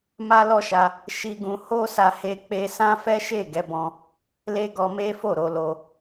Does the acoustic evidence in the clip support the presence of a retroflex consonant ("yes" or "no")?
no